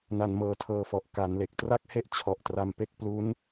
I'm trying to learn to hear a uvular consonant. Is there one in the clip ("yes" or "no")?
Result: no